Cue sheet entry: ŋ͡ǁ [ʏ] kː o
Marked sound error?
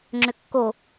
no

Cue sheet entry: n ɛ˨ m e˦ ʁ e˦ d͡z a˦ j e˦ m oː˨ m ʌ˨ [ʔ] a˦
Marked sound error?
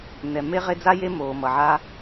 yes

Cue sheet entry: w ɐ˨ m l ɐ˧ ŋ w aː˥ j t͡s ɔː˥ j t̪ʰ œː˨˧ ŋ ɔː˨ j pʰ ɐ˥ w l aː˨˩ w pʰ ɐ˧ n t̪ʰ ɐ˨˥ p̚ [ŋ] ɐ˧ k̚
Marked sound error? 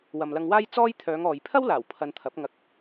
no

